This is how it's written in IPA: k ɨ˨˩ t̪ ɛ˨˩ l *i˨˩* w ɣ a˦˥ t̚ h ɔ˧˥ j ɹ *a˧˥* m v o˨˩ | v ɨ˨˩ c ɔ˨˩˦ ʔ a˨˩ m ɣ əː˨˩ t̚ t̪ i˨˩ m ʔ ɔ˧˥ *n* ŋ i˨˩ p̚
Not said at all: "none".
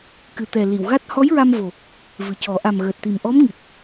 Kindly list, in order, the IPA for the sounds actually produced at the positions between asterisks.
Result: i˨˩˨, a˧, m

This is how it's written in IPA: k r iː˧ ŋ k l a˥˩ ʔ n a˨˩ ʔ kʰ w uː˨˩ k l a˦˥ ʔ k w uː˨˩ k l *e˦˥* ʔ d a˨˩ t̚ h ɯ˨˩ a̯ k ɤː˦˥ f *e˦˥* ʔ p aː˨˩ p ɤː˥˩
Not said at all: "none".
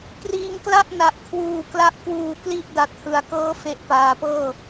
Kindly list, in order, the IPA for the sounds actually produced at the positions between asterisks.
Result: i˦˥, e˦˥

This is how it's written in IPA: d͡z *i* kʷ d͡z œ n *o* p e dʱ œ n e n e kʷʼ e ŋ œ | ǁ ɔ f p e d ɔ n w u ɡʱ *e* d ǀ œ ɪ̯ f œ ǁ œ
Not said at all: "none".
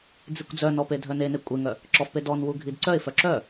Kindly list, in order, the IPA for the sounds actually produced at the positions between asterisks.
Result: i, ɔ, i

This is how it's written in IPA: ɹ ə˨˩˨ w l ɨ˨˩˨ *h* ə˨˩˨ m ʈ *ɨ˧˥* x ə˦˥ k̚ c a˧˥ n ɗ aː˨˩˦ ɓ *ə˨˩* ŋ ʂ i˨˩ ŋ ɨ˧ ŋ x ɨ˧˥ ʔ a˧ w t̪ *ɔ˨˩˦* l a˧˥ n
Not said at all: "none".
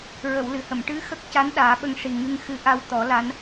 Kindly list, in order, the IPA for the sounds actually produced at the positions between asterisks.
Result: h, ɨ˧˥, ə˧, ɔ˨˩˦

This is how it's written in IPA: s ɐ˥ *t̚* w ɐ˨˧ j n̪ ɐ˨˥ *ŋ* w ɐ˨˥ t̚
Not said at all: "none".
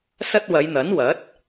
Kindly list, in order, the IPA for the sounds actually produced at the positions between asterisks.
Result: t̚, n

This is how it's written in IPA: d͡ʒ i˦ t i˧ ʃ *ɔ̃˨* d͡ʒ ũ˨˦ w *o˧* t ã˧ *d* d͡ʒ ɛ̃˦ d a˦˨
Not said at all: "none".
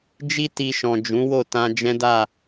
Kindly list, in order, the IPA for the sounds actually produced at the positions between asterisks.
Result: ɔ̃˨, o˦˨, none

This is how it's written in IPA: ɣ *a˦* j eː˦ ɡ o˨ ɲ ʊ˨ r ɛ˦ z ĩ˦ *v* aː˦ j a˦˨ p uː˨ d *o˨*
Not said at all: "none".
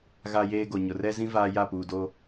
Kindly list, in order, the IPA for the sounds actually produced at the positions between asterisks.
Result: a˦, v, o˦

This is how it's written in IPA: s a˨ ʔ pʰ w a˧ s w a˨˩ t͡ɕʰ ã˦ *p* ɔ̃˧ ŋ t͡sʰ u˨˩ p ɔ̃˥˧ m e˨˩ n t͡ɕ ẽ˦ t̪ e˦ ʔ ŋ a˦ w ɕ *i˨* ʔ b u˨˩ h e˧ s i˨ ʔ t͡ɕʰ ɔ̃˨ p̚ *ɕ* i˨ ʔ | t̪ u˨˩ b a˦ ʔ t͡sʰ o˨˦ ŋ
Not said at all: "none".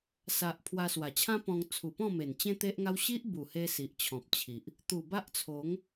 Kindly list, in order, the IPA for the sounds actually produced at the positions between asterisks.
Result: p, i˦, t͡ɕʰ

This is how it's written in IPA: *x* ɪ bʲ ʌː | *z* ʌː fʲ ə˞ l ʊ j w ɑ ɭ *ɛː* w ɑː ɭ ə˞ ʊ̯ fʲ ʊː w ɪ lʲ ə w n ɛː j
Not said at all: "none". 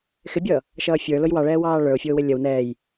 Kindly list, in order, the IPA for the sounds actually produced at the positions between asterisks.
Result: x, ʃ, ɛː

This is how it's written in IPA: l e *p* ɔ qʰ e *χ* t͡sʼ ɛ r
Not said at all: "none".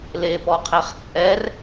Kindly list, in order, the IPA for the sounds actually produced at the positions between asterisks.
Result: p, χ

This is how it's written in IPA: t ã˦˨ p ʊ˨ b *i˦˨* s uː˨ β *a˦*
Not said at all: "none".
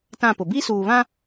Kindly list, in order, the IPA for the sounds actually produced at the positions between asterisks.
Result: i˦, ã˦

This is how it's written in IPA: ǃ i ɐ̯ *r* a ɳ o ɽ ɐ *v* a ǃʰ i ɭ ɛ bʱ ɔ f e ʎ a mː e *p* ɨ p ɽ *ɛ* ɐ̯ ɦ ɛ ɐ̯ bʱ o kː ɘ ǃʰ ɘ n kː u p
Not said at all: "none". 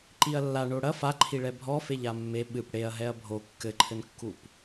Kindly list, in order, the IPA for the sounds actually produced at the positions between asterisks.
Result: lː, f, ɓ, e

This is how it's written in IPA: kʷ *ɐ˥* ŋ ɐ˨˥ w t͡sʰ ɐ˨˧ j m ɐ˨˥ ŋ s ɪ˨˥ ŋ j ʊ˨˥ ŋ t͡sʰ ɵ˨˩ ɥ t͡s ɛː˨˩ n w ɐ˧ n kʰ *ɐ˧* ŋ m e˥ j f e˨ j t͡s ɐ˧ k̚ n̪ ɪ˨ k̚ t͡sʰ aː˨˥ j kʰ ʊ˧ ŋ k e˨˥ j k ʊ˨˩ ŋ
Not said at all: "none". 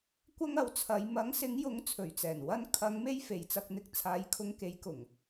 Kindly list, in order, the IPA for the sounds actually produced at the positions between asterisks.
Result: ɐ˥, ɐ˨˧

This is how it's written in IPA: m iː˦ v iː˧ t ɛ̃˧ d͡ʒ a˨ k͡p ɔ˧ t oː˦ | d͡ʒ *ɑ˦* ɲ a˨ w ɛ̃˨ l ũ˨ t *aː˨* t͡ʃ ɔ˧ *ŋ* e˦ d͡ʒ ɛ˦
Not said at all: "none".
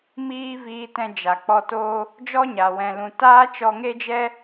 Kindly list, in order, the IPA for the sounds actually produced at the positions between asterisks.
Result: ɔ˦, aː˦, ŋ

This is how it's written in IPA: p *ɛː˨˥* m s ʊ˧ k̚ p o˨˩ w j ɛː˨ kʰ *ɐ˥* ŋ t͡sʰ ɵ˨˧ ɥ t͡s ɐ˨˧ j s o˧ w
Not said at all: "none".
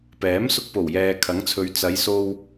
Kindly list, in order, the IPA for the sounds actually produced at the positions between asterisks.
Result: ɛː˨˥, ɐ˨˥

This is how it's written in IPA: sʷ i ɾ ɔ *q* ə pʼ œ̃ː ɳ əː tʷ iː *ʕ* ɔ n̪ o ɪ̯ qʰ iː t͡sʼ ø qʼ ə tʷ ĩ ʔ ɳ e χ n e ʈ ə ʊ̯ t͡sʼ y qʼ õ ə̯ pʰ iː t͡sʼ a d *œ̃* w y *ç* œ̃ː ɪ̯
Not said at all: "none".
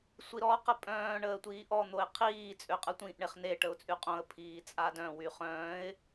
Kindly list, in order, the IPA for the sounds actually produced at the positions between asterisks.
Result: q, ʔ, œ̃, χ

